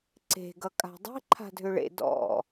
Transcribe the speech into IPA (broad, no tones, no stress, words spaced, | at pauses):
ǀe̤ ɡʌkʼa̤dˤe̤ ǃʰa̤dʱʏɭḛ dɔ̰